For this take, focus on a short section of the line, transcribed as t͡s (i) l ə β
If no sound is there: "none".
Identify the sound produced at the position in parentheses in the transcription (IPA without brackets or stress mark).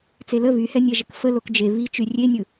e